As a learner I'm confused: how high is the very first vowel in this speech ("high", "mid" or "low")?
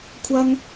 low